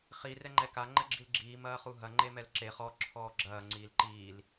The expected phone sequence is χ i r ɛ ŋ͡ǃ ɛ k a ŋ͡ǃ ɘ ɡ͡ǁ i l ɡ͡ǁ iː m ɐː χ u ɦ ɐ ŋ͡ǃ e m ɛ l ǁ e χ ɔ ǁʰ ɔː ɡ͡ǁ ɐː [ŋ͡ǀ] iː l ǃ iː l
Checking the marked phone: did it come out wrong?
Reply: no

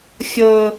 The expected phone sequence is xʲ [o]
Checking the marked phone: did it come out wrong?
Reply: yes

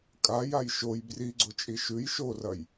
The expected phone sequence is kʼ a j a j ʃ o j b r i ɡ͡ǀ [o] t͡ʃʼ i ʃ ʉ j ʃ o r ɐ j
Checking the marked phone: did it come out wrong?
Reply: no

